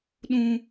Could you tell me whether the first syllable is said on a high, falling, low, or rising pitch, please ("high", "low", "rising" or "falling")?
high